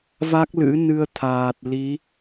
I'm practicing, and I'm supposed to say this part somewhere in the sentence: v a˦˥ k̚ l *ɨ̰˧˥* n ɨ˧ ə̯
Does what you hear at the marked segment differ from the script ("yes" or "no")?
no